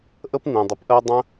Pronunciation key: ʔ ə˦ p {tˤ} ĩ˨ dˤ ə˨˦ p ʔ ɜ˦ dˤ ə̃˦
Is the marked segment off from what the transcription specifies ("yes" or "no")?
yes